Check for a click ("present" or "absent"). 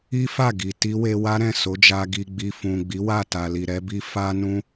absent